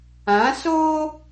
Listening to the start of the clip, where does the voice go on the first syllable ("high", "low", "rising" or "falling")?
rising